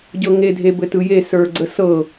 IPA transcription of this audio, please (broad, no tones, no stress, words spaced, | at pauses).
ɟɤŋe dʱebɘtɯje sə˞ɡ͡ǀəsɤ